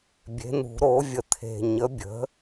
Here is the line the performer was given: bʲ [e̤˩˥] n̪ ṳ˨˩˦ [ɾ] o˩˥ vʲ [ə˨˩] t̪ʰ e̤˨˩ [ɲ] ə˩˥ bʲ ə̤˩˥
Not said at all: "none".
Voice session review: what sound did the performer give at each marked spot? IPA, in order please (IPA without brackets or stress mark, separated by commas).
e̤˩˥, ɾ, ə˨˩, ɲ